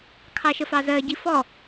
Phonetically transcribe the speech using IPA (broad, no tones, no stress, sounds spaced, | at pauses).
kʰ ɑ ʃ ə f ɑ z ɜ ɟ i f ɔ